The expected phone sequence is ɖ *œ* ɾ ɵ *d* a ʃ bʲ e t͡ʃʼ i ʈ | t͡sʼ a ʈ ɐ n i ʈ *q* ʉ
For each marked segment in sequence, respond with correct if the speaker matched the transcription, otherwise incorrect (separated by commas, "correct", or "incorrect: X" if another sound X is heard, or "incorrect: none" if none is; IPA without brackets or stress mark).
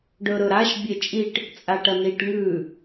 incorrect: ɵ, incorrect: ɾ, incorrect: ŋ